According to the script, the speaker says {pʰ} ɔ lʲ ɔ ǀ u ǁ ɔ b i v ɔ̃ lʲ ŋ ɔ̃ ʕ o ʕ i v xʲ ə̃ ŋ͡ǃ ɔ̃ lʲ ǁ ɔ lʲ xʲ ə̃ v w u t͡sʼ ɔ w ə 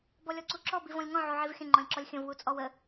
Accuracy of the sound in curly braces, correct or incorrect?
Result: incorrect